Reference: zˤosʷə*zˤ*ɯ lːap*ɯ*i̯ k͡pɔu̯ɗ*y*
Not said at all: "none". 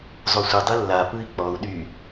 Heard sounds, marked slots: dˤ, ɯ, y

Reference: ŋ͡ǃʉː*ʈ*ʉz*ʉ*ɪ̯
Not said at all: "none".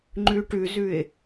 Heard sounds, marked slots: ʈ, ʉ

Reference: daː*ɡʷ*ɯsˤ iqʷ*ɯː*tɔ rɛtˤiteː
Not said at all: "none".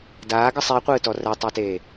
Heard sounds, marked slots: ɡ, ɯː

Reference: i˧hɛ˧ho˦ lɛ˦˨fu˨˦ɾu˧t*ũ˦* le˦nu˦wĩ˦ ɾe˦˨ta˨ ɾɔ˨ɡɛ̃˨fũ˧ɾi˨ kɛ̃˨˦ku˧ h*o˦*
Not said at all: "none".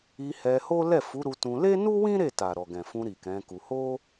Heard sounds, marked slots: ũ˧, o˦

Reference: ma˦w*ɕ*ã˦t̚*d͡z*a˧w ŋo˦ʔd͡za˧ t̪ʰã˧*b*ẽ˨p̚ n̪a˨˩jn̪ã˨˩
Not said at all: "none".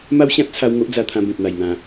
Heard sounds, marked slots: ɕ, t͡sʰ, b

